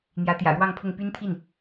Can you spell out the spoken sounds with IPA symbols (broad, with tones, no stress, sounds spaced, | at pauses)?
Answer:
n̪ j ä˧˥ t̪ j ä̰˨˩ ɻ w ɑ˥˧ ŋ pʰ ʊ˥˩ ŋ p y˥ n t̪ʰ i˥˩ n